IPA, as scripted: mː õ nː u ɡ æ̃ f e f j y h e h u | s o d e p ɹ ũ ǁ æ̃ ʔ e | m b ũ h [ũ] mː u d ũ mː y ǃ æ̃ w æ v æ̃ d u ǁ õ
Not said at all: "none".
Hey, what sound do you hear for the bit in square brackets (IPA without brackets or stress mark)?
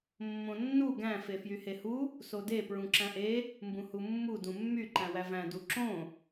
u